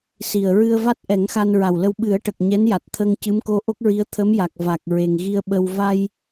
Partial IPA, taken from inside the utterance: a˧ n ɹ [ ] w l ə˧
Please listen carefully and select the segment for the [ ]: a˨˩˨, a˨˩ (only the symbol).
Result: a˨˩